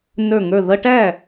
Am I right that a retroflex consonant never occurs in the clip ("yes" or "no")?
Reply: no